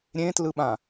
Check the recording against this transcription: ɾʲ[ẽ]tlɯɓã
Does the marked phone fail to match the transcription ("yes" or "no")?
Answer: no